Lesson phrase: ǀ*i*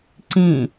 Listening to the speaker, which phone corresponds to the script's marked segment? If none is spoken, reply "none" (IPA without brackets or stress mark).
ĩ